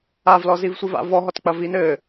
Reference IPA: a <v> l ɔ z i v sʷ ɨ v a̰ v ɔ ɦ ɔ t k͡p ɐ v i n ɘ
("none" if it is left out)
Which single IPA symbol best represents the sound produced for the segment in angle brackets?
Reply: v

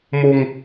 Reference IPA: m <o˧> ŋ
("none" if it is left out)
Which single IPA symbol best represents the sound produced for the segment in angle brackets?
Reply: o˧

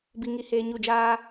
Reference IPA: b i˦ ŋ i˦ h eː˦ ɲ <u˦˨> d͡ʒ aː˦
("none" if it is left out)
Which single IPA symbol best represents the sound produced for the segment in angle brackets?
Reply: u˦˨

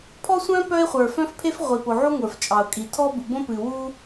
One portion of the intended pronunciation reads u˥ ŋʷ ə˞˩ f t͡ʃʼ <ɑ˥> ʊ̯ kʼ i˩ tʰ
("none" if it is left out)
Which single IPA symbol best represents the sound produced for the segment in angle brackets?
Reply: ɑ˩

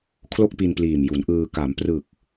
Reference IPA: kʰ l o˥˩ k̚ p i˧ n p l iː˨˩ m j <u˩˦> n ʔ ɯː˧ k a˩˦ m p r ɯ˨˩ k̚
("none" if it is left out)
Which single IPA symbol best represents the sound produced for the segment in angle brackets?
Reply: u˩˦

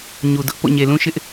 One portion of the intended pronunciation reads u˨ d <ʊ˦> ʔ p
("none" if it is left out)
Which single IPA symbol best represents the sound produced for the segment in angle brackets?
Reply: ʊ˦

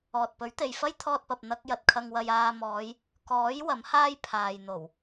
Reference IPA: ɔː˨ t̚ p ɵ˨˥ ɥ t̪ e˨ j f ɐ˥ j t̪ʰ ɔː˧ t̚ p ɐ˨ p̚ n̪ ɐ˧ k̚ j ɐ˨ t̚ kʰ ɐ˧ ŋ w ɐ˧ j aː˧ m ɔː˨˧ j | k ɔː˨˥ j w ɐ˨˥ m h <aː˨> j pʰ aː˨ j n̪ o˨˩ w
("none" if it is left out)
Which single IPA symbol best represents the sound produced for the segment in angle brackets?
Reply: aː˥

